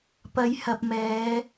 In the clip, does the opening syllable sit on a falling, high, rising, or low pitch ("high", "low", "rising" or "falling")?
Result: low